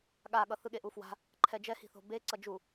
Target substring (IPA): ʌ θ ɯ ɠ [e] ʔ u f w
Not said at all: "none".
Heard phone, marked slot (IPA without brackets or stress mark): e